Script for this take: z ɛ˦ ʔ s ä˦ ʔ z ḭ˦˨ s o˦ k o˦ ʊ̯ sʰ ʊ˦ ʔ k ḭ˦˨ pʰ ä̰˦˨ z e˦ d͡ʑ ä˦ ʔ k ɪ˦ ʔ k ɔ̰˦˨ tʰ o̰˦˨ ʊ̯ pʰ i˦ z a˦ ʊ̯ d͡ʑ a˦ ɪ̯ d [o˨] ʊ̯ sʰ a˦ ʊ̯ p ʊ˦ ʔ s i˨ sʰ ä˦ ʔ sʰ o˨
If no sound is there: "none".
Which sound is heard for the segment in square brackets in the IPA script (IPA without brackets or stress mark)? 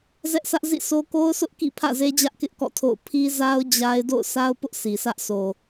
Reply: o̰˦˨